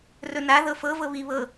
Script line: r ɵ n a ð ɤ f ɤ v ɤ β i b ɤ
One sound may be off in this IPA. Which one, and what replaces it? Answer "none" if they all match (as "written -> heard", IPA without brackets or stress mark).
b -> β